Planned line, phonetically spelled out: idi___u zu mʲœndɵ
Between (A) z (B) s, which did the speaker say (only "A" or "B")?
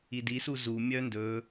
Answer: B